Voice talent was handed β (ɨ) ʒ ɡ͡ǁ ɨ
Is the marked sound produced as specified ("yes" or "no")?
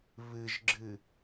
yes